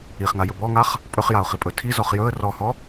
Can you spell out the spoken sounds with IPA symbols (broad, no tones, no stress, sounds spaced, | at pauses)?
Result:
i χ ŋ a j ɵ b ɔ ŋ a χ | pʼ ɵ χ j a ʊ̯ χ i pʼ ɵ tʰ i z ɔ χ j ɵ ə̯ r ɔ h ɔ